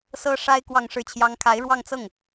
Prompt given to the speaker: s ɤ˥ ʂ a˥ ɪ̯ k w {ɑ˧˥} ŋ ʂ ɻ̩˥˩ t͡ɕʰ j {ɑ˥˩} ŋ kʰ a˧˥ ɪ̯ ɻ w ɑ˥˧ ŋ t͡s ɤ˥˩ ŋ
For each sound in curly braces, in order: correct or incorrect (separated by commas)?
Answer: incorrect, incorrect